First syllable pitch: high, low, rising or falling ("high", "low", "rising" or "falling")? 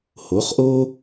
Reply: rising